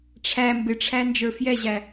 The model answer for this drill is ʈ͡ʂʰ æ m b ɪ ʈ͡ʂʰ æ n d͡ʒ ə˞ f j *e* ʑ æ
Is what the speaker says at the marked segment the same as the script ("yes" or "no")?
no